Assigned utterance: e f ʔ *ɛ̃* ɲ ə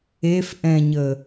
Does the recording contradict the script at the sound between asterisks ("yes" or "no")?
no